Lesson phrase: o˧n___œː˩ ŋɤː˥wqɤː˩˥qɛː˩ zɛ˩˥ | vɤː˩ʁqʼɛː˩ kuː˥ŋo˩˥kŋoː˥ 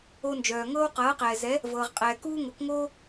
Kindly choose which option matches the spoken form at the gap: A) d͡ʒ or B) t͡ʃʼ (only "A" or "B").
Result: A